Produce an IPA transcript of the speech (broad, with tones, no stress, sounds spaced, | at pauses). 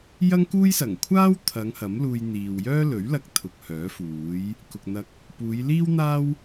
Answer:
j ɐ˥ ŋ k uː˥ j s ɐ˨˩ ŋ kʷʰ aː˥ w t̪ʰ ɐ˨˧ ŋ h ɐ˨˥ m l uː˧ j n̪ iː˨ w j œː˥ l ɵ˨˥ ɥ l ɐ˧ k̚ t̪ʰ ʊ˨ k̚ h œː˨˥ f uː˨˥ j | k ʊ˨ k̚ n̪ ɐ˧ k̚ | p uː˨˧ j l iː˥ w n̪ aː˥ w